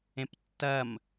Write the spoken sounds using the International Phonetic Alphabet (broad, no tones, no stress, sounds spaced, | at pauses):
ẽ p tː ɐ m